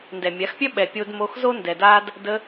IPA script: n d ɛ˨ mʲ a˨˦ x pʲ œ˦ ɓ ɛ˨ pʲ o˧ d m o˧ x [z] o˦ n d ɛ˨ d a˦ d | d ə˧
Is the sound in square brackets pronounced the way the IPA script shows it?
yes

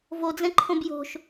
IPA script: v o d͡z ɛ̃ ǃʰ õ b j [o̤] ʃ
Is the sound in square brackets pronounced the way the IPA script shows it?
yes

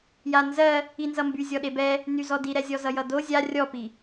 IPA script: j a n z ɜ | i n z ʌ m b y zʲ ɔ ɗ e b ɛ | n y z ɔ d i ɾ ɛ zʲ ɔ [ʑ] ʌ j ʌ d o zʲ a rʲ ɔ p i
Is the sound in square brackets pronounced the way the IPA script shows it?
no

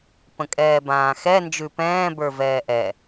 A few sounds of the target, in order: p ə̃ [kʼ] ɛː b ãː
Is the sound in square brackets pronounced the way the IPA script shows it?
yes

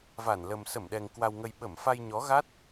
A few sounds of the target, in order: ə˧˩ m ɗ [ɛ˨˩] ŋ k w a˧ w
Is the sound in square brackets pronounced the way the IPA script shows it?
yes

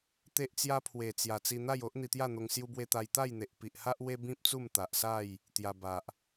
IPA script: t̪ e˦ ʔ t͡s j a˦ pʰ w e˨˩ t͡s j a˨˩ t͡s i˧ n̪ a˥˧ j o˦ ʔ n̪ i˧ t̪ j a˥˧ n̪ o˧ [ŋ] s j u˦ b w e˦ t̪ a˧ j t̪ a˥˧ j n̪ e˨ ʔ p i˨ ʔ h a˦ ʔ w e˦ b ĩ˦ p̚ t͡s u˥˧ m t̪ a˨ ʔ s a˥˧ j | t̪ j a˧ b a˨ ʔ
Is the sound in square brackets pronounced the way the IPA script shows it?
yes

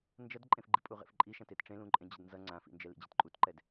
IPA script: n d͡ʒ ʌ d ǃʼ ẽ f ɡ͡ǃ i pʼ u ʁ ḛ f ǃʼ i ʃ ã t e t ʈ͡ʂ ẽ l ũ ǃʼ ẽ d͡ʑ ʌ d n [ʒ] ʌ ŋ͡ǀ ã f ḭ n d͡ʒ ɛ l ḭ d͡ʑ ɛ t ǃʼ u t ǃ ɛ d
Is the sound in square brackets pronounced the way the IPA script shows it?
no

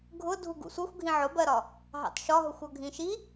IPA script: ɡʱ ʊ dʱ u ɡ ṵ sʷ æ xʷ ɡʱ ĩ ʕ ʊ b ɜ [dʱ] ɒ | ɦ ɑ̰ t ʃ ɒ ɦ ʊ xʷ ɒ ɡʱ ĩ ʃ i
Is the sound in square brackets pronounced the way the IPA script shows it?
no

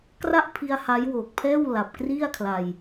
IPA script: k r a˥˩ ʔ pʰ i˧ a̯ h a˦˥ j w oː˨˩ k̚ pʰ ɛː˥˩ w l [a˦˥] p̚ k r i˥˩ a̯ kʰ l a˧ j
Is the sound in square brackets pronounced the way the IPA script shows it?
no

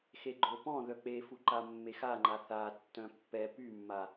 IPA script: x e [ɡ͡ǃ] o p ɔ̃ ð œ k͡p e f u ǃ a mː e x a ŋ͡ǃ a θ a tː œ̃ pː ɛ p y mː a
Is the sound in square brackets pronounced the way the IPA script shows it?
yes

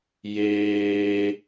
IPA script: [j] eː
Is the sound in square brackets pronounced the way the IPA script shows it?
yes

